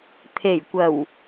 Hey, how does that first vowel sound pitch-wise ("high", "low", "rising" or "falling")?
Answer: low